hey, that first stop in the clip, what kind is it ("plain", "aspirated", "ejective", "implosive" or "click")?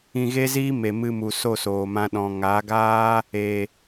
implosive